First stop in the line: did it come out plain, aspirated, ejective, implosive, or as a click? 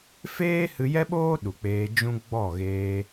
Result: implosive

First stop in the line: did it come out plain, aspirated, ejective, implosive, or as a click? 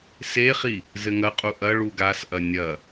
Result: ejective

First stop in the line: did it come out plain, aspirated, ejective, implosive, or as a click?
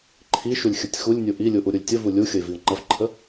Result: click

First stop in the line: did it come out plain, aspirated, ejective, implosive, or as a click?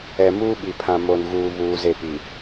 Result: implosive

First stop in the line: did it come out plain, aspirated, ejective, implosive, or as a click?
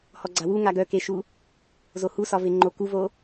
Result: click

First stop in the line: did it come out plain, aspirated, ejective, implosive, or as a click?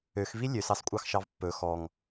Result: ejective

